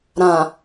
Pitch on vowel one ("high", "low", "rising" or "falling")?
low